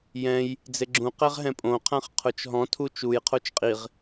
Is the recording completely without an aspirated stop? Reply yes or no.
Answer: no